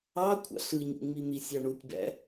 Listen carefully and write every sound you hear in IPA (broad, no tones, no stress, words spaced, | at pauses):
ɑ kʷʰɑ̰ɬɯɲṵŋ͡mi n̪isʲɑɳutʲbæ̰